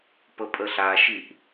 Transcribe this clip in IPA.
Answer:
p ə pʼ ə ɬ a ʃ i ʔ

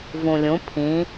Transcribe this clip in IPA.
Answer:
v ũ lʲ ũ pʰ ĩ

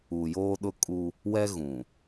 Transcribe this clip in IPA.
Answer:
u˨ j oː˦ ɗ ʊ˦ kʼ u˦ | w ɛ˦ ɣ ũ˨

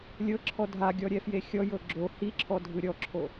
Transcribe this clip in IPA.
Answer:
lʲ ɤ ǁʰ ɔ dʱ a ɡʲ ɔ ɾʲ ɛ f j e xʲ ɔ j ɤ ɡ͡ǁ o h i ǁʰ ɔ dʱ ɯ ɾʲ ɔ ǁʰ o

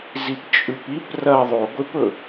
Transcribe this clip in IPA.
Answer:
z i p t͡ʃʼ ʉ p i p r ɐ ðˤ o ɡʷ e p ɵ

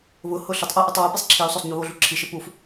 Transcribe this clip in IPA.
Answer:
β ʊ h ʊ ɬ ʊ tˤ ʔ o ʔ u tˤ w u p i sˤ ǁʰ i u̯ sˤ o sˤ ɲ u β o ɮ u ǁʰ i ʃ ɪ p u f

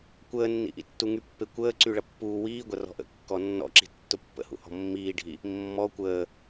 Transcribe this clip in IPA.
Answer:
kʷ əː nː ḭ ʔ ḭ tː u ŋ y pː e kʷ əː ǀ y ɭ ɐ pː uː w iː ɡʷ ɐ r ɔ̤ ʔ ə̰ kː ɔ nː ɔ̰ ǁ i̤ tː ʊ pː ə̰ h ṵ h ɔ̤ mː iː ɖʱ i | mː ɔ kʷ əː

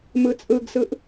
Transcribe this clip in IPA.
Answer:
m ɯ t͡sʼ ɯ ɡ s ɯ ʔ

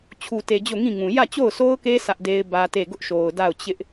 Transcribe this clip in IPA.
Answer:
t͡ɕʰ u˨ t e˨ d͡ʑ o˦˨ ŋ ĩ˦˨ ŋ ũ˨ j ä˦˨ t͡ɕ o˦˨ ʊ̯ sʰ o˦ ʊ̯ k e˦ sʰ ä˦ ʔ d e˦ ɪ̯ b ä˦ t e˦˨ ɡ ʊ˦ ʔ ʃ o˨ ʊ̯ d a˦˨ ʊ̯ t͡ɕ ɪ˦ ʔ

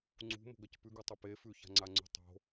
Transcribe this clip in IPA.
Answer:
ŋ͡ǀ ṳ m o̤ ɡ ɐ c p ʉ ɡ ʉ tˤ ʉ p e f ʉ ç a̤ ŋ͡ǀ a ŋ͡ǀ ṳ tˤ o̤

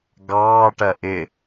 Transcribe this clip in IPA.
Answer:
ɡ ɑː ʈ ɜ ʔ ɪ

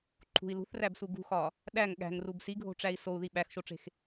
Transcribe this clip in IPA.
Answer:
ǃʰ ṳ i̯ l ṳ θ r æ b s u ɡ ṳ x ɒ | ɗ æ ŋ ɠ æ̤ ŋ r u b s i ɡʱ o̤ ʈ͡ʂ æ i̯ s o u̯ ð i ɓ æ x ʃ o ʈ͡ʂ e̤ x

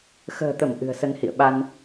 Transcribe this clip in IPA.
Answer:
x ə̤ː˨˩ t̪ ə˧˩ m ʔ ɨ̤˨˩ ə̯ s ə˧ n h ḭ˧˨ ə̯ ɓ a˧ n

